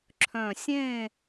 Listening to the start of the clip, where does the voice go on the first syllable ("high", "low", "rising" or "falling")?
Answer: low